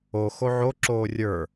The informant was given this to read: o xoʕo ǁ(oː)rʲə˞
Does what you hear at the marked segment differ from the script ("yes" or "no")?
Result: no